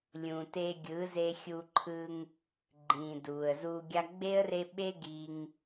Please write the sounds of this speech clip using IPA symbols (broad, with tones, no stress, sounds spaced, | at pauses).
lʲ ũ˨ t e˧ ɡʲ ɯ˨˦ z e˧ xʲ u˧ ǃʰ ɯ˧ ŋ | ɡ͡ǃ ĩː˨ d uː˨ ə̯ z uː˧ ɡʲ a˦ ɡ͡b e˦ ə̯ r e˧ ɓ e˦ ɡ i˧ ŋ